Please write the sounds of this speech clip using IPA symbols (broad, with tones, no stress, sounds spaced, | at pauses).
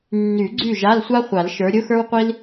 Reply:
nː y˨˩˦ ɡ͡ǀ y˥˨ ʒ a˧˥˧ l sʷ a˥ χʷ a˨˩˦ l ʃ ə˞˨˦ ɾʲ ʊ˧˥˧ x ə˞˥ w qʷ i˥ l